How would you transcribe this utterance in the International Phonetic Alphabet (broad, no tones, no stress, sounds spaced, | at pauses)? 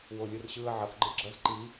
w o lʲ ɯ r ɕ ɯ ə̯ ʕ ʌ x ɡ͡ǃ ɯ ɡ͡ǁ ʌ z ǃ i